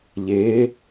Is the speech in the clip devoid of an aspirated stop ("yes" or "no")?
yes